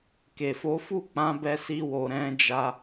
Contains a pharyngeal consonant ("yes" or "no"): no